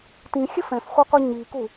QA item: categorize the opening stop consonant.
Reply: plain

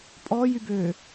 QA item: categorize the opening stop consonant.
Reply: ejective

